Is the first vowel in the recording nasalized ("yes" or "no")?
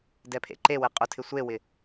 no